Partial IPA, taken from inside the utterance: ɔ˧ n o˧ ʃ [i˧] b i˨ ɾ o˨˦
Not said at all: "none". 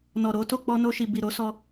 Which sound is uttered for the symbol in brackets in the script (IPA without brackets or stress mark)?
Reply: i˨